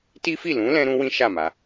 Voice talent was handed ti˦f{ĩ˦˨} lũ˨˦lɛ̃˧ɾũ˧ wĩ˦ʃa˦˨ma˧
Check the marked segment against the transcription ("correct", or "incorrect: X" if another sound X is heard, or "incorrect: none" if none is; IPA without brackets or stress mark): incorrect: i˦˨